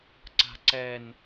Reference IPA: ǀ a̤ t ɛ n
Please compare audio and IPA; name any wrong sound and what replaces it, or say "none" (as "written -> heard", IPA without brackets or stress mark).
t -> ǀ